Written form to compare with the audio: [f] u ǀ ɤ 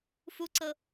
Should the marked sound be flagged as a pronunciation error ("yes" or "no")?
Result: no